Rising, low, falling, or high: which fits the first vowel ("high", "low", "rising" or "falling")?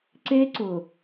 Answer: high